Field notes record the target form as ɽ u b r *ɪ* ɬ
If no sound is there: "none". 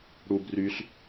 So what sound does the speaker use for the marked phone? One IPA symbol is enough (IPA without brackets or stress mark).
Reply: y